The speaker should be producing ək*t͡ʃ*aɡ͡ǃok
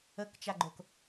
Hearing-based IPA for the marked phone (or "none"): t͡ʃ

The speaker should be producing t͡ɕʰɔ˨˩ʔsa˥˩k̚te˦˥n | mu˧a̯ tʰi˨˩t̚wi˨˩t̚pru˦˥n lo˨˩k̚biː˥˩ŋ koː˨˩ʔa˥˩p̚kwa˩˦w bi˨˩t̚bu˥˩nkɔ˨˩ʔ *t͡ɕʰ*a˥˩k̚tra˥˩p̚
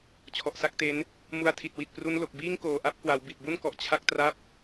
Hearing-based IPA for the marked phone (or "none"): t͡ɕʰ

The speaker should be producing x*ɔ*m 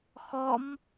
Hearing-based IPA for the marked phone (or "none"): ɔ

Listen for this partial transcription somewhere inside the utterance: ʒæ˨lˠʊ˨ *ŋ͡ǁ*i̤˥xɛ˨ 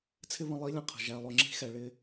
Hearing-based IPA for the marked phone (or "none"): ŋ͡ǁ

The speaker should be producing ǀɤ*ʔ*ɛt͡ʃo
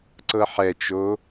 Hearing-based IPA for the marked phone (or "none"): ħ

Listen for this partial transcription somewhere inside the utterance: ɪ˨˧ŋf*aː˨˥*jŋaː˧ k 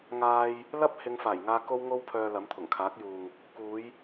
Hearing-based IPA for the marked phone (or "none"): aː˨˩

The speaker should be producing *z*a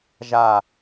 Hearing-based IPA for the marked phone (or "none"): ʒ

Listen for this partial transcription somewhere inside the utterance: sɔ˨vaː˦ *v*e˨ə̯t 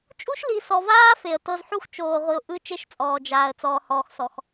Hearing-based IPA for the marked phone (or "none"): f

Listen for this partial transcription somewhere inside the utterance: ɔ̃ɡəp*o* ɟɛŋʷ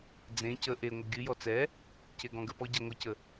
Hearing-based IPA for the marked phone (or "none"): ɔ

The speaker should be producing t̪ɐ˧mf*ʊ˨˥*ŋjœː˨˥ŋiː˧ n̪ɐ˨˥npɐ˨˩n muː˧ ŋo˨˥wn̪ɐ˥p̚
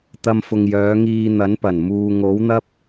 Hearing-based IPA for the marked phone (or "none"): ʊ˨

